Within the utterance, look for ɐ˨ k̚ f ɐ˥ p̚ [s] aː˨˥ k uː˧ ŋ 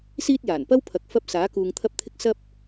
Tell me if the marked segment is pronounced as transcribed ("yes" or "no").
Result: yes